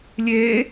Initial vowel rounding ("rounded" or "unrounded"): unrounded